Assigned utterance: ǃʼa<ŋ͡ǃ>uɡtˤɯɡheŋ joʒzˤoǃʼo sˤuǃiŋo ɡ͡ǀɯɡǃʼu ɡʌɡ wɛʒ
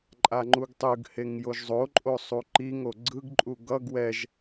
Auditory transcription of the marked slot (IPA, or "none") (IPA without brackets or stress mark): ŋ͡ǃ